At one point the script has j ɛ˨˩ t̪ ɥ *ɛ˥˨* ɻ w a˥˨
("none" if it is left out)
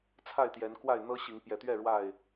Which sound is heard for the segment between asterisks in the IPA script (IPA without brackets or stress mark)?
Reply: ɛ˥˨